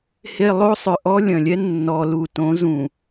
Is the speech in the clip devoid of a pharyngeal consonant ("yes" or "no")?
yes